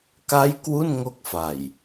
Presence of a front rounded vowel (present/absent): absent